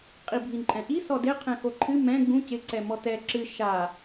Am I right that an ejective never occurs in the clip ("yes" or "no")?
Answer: no